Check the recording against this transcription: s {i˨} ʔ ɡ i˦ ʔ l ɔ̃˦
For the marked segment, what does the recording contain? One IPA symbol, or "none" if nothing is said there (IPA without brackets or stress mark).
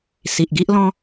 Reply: i˨